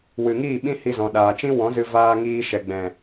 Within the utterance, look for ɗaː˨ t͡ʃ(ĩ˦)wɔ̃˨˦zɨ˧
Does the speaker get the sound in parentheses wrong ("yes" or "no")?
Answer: no